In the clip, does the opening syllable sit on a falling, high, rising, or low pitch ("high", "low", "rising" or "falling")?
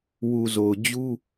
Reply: low